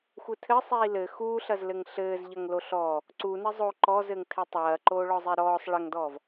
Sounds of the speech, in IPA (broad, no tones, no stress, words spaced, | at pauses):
xʷɘtʰɘ sˤiːlɘ xuːɬɐzlɘŋ ɬɘːzʎɐŋ loɬɔː | ǀunɘ zˤo ǃɔzɘŋtʰɘ tˤɐːǃoːɭɔzˤe ɾɔːsˤ ɭɐŋdɔːv